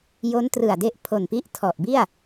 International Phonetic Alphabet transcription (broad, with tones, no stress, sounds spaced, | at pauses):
j o˦˥ n t r ɯ˨˩ a̯ d e˦˥ ʔ pʰ o˨˩ n p i˦˥ ʔ tʰ ɔ˨˩ ʔ b i˥˩ a̯